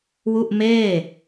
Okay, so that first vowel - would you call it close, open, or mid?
close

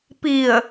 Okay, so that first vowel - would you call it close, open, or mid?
close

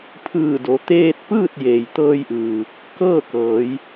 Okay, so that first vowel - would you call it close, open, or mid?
close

